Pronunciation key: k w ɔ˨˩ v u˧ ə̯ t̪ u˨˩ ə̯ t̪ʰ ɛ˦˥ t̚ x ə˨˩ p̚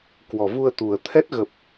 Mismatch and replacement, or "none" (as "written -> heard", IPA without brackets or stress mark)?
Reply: x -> ɣ